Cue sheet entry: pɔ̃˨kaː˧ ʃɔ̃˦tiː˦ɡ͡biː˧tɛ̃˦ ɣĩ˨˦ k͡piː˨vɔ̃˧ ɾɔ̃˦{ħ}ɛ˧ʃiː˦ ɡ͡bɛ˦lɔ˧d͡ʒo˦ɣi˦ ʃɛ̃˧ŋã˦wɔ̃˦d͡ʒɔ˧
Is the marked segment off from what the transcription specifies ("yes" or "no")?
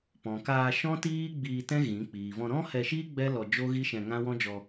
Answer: yes